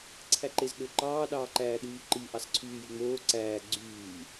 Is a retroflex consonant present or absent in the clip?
absent